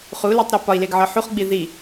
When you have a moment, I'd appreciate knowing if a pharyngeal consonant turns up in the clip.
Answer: yes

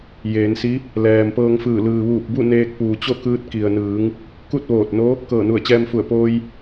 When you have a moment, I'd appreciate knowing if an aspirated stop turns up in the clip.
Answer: no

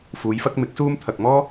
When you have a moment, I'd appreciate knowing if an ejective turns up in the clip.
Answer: no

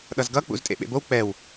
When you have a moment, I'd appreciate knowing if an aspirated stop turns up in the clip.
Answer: no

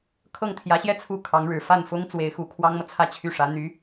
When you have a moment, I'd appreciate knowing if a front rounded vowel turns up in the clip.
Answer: yes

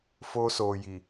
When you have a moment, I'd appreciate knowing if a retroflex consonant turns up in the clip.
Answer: no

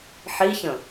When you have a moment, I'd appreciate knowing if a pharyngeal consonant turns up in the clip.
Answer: yes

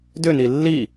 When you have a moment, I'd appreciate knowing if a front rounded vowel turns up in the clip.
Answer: yes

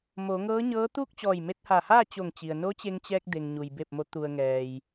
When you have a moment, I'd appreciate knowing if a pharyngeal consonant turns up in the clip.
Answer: no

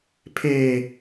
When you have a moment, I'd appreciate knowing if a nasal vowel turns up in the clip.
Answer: no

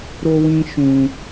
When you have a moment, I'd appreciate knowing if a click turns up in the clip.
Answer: no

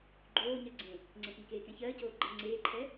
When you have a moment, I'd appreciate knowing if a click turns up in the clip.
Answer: yes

